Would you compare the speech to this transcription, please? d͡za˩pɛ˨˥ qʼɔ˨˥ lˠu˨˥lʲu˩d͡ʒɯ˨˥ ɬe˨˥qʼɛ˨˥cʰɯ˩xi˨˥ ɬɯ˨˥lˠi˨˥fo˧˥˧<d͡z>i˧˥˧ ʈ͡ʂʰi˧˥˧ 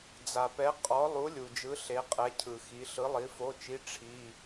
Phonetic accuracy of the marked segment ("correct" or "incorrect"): incorrect